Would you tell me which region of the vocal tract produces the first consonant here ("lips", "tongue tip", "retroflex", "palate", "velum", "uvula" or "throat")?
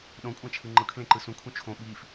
tongue tip